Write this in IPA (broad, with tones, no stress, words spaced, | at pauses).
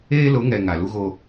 eː˦lʊ˨˦ŋɛ˨ ŋa˨lu˦ɣo˦